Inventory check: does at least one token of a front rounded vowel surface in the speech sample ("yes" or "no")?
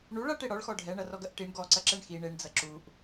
no